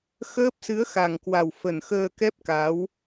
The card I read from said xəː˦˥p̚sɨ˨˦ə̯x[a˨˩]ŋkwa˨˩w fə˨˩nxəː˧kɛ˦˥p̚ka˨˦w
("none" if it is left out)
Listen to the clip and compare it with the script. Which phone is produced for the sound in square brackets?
a˨˩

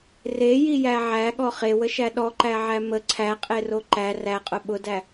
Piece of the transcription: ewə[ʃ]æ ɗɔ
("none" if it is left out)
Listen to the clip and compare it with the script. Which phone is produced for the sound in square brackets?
ʃ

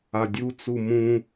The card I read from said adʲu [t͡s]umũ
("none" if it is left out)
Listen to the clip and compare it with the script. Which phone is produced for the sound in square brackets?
t͡s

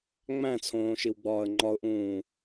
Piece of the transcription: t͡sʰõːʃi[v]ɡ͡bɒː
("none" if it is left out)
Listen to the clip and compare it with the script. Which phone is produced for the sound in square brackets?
w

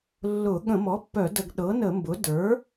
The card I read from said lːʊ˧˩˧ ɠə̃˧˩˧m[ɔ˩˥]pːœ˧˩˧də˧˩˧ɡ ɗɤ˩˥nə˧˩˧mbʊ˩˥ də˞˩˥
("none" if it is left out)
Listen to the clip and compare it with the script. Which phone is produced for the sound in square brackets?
ɔ˩˥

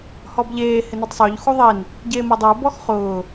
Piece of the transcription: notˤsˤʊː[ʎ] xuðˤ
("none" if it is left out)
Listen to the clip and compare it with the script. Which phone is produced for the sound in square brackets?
ʎ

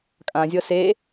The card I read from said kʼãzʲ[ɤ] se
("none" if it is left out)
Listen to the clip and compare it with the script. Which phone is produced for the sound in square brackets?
ɤ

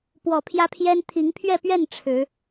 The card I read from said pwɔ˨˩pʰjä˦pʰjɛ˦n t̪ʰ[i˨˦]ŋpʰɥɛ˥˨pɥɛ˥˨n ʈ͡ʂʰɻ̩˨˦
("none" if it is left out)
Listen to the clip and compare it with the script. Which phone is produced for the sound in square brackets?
i˨˦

